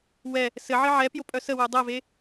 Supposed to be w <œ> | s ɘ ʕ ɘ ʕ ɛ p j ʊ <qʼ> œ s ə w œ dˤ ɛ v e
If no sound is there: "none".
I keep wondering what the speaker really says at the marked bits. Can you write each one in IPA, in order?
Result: ɛ, pʼ

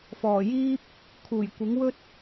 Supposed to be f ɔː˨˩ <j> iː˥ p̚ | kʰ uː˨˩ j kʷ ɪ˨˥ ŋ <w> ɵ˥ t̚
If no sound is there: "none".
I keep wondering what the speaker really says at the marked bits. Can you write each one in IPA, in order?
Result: j, w

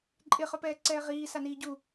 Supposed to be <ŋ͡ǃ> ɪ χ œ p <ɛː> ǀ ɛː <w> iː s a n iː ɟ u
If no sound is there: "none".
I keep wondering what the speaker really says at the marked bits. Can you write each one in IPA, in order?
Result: ǃʼ, ɛː, ʁ

